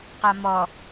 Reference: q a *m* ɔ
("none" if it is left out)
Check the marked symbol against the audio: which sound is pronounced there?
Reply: m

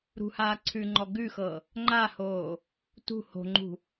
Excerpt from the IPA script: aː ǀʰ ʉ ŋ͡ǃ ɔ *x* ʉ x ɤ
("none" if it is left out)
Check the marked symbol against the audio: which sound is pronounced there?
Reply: ɡ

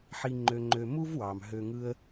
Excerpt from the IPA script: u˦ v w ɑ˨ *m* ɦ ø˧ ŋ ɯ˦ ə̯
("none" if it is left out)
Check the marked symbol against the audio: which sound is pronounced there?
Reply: m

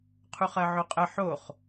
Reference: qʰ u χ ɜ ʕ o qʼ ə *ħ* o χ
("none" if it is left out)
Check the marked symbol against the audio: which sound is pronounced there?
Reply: ħ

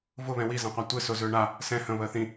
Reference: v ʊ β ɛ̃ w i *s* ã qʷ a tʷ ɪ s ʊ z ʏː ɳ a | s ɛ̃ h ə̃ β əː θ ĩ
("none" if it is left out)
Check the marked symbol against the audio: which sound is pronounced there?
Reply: z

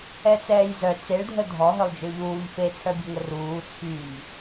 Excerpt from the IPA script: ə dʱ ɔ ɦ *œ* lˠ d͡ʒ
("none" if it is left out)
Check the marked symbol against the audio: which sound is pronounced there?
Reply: œ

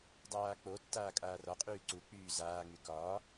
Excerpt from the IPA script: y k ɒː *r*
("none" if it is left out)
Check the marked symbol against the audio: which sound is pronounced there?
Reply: none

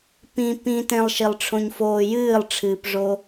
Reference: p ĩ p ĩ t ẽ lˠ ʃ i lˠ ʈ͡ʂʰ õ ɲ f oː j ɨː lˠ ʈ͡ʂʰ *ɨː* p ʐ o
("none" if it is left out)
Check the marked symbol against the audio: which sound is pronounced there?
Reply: ɨː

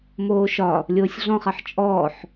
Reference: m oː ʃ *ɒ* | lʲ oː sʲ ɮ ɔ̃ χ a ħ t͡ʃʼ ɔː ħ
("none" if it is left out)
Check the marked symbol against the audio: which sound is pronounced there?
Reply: ɒ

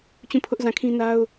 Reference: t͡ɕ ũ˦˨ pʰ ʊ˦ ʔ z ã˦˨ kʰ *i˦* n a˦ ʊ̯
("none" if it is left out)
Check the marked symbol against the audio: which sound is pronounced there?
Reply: ĩ˦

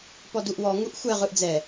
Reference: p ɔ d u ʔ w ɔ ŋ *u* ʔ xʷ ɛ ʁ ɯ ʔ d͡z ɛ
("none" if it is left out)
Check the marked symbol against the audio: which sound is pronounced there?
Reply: u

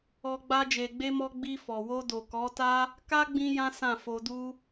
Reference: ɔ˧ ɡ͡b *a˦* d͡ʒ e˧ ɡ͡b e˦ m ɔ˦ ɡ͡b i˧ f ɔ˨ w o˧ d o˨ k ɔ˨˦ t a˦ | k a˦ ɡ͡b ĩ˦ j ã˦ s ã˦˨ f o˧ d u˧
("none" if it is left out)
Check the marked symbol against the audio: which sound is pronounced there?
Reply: a˦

